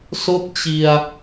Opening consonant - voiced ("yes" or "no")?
no